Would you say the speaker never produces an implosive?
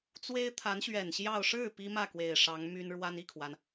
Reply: yes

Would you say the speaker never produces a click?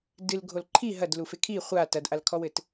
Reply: no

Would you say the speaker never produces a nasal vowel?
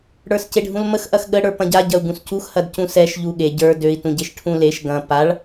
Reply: no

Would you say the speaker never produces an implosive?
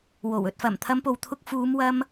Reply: yes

